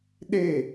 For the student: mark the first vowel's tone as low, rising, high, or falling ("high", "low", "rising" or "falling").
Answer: falling